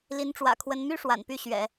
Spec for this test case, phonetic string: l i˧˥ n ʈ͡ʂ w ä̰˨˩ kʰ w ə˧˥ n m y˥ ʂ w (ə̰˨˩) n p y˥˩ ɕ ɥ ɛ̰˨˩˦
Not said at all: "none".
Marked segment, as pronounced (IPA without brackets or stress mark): a̰˨˩